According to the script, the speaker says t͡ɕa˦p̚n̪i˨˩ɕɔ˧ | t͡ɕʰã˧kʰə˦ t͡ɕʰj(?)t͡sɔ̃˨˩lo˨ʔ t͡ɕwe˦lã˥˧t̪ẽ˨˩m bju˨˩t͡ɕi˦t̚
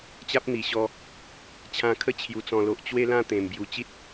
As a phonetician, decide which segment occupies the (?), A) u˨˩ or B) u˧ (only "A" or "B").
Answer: A